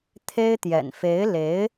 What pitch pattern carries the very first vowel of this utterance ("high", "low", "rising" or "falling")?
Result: high